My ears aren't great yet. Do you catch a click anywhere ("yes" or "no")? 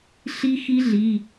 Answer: no